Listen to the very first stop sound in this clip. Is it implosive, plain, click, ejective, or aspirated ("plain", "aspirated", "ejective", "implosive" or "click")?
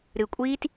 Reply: ejective